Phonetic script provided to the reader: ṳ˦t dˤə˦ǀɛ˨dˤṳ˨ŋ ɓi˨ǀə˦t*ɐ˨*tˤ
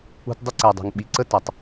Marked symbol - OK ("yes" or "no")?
yes